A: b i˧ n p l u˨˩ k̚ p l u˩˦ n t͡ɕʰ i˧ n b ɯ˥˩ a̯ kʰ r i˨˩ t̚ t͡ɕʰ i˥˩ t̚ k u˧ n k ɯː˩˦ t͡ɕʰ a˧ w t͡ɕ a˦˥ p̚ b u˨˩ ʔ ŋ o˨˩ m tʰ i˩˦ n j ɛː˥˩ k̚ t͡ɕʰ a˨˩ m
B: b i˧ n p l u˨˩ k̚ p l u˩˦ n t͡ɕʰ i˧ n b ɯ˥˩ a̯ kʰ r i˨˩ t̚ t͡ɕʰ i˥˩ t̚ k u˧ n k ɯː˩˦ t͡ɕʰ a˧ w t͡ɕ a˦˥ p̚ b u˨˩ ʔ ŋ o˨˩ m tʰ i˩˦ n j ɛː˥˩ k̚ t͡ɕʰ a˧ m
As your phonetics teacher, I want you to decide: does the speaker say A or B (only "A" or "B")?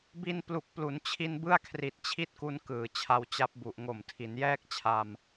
B